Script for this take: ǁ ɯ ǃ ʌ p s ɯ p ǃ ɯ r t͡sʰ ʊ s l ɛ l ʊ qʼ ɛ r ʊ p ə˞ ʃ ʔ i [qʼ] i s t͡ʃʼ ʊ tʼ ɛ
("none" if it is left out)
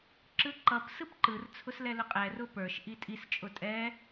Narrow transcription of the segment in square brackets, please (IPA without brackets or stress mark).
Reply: tʼ